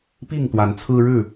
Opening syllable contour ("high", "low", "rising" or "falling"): falling